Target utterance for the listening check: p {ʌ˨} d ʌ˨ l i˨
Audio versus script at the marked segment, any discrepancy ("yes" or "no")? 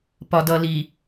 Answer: yes